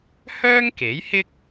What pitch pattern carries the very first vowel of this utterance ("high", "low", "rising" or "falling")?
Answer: high